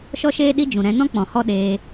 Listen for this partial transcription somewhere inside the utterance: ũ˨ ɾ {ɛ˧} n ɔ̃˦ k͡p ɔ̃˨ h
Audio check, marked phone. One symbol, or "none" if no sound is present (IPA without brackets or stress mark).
ɛ̃˧